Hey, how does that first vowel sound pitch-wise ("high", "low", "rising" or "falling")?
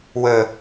low